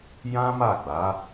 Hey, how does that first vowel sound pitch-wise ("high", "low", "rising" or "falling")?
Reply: high